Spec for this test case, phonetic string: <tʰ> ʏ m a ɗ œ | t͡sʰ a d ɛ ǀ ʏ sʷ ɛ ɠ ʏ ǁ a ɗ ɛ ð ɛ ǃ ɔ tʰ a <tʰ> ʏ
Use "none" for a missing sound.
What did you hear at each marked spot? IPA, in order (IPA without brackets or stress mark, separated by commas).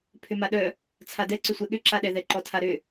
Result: pʰ, ɾ